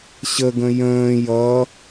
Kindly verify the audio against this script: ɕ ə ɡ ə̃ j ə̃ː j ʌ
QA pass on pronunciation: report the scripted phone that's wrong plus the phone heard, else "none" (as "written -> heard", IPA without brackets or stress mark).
none